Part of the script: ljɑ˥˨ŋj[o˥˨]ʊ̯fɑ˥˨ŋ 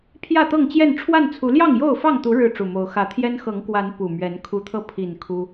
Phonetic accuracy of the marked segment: correct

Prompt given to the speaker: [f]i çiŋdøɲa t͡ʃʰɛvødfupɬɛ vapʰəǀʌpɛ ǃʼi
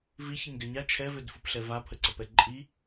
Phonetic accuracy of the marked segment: incorrect: v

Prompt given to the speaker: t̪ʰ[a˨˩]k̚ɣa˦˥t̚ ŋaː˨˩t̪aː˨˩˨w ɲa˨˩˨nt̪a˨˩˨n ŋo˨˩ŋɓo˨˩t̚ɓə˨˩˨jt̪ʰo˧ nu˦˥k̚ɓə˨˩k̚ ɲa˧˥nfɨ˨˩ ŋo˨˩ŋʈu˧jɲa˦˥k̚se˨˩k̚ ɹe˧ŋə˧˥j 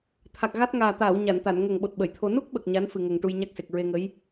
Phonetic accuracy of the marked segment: correct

